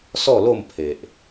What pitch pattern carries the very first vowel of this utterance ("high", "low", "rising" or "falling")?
falling